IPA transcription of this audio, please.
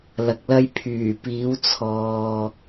l ɐ˧ k̚ l ɐ˥ j pʰ yː˨˩ p iː˨˥ w t͡sʰ ɔː˨

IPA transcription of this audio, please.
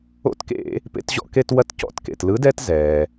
o̰˦˨ t k ḛ˧˩˧ | p ḛ˦ t ʑ ɔ̰˦ k e˦ t w ɐ˦ t c ɔ̰˦˨ t k ḛ˩ t l ɯ˨˥ d ɛ˦ t z ɛː˩

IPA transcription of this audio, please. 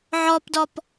ʕ ɔ p d ɔ p

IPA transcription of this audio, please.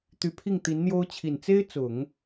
t̪ y˧˥ pʰ i˥˩ ŋ t̪ i˧˥ n n̪ j o˥ ʊ̯ t͡ɕʰ i˨˩ n t͡s e˥ ɪ̯ t͡s ʊ˨˩˦ ŋ

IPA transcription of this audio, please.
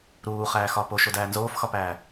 ɾ uː χ æː x ɒ p o ʃ o d æː n z oː f x ɒ p æː

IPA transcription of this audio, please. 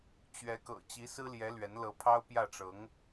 t͡ɕ ɥ ɛ˧˥ k ɤ̰˨˩ t͡ɕ i˧˥ s ɹ̩˥ l j ɛ˧˥ l ɥ ɛ˧˥ n l ɤ˧˥ pʰ ɑ˥ ʊ̯ p j ä˥˩ ʈ͡ʂ ɤ˧˥ ŋ

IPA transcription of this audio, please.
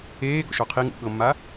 eː ɡ ɔ̰ ʃ ɔ qʰ i ŋ ṵ ɠ ɤ mː a

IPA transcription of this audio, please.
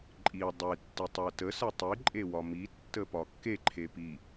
ǃʼ i dˤ e tː i tˤ ɜ t ə s ɜ tˤ i ǃʼ e w ɒ m i tː ə p ɒ kː e ǃʰ e p i

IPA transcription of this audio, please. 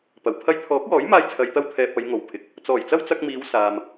p ɐ˨˩ w pʰ ɐ˧ j t̪ʰ ɔː˨˥ k̚ w ɔː˨˥ j m aː˥ j t͡sʰ ɐ˧ j t̪ ɐ˥ w t̪ʰ ɛː˨ p̚ ɐ˨˧ j ŋ o˨ w pʰ ɪ˨˥ k̚ | t͡s ɔː˨˩ j t͡s ɐ˥ w t͡s ɐ˧ k̚ m iː˨˧ w s aː˨ m

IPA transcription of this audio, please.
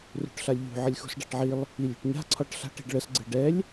r ṳ ʈ ɬ a lʲ ʎ ṳ ʕ ə lʲ x ṳ s ɖ a̤ ʈ ʕ i lˠ | i lʲ ṳ ʈ ɲ a̤ ǀʰ ɒ ʈ ɬ a̤ ʈ i̤ ɖ ɭ ə s ɡ͡ǀ ɨ ɖ ɛ lʲ

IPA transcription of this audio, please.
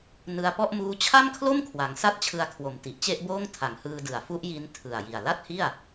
n ɯ˧ a̯ p ɔ˥˩ ʔ m uː˦˥ t͡ɕʰ a˥˩ m kʰ l o˥˩ m kʰ w a˩˦ ŋ s a˥˩ t̚ t͡ɕʰ ɯ˧ a̯ kʰ w o˨˩ m t i˨˩ ʔ t͡ɕ e˥˩ ʔ b oː˥˩ ŋ tʰ a˨˩ ŋ h ɯː˧ d ɯ˨˩ a̯ f u˦˥ ʔ j i˦˥ n tʰ ɯ˨˩ a̯ j i˨˩ a̯ l a˥˩ t̚ h i˥˩ a̯

